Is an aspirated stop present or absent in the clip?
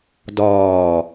absent